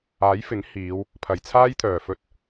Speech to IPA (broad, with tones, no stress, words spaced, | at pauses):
aː˨˥jfɪ˨˥ŋ hiː˨˧w | pʰɐ˨˩jt͡sʰaː˥jt̪ʰœː˨˩ fɵ˧t̚